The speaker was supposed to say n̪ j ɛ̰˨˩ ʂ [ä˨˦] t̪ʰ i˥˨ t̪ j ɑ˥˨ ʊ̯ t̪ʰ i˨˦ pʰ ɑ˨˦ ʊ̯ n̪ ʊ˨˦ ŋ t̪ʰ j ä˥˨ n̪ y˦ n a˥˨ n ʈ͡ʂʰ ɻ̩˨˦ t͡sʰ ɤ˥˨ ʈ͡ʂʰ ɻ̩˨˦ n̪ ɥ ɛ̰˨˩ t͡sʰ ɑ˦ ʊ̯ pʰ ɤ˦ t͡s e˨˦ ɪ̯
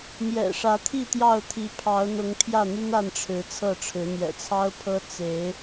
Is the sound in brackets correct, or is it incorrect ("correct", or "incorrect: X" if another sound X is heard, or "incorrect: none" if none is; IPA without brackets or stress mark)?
correct